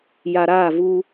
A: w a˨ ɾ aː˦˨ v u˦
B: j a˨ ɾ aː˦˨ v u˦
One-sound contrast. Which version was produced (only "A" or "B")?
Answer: B